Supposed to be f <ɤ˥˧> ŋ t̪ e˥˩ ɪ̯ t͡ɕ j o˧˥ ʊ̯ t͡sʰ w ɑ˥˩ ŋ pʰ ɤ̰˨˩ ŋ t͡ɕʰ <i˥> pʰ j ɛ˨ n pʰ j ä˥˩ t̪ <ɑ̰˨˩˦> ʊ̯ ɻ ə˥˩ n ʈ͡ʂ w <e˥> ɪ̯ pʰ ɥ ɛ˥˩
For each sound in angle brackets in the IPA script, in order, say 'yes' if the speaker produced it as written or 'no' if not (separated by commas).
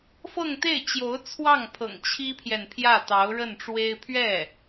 yes, yes, no, yes